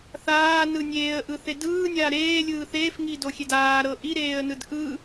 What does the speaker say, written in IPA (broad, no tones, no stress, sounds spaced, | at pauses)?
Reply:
θ aː n ɯ nʲ eː ə̯ ʔ ɯ θ e d ɯː nʲ aː ɾ eː lʲ ɯː θ eː f ŋ i d o xʲ e d aː ɾ ɤ ʔ i ɾ eː ə̯ n ɯ d ʔ ɯ